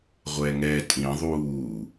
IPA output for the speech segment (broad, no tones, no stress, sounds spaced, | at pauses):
ʁʷ ɛ ŋ ɛ tʼ ĩ ðˤ uː